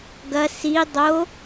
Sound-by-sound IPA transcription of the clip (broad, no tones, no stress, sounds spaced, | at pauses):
ɡ ɐ s i dˤ o